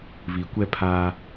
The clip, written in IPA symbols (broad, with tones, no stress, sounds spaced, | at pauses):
β i˨ kʷ ɛ˦ pʰ a˦